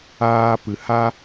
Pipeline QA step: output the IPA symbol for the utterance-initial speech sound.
aː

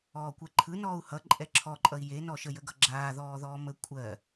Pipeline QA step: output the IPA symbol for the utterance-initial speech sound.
ɔː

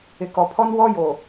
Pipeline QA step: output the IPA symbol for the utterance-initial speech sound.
ɪ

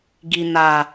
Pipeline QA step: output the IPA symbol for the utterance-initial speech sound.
ɡ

